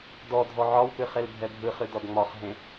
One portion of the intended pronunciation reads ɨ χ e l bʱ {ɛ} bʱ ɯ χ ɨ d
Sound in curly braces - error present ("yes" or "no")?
no